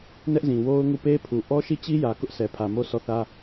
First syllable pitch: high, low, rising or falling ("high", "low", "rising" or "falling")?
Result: high